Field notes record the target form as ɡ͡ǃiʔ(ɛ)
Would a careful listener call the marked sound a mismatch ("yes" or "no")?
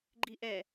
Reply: no